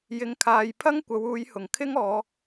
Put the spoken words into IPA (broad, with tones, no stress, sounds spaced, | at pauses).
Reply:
j ɪ˨ ŋ kʰ aː˨ j pʰ ɐ˥ ŋ kʷ ɐ˨˧ w uː˨˧ j h ʊ˨˩ ŋ kʰ ɪ˥ ŋ ɔː˨˧